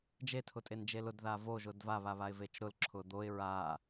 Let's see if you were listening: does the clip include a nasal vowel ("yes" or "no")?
no